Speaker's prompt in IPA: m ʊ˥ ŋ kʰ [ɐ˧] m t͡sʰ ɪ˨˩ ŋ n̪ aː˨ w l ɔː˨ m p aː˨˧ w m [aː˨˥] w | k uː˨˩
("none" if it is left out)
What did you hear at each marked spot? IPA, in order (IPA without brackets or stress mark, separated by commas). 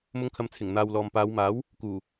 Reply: ɐ˧, aː˨˥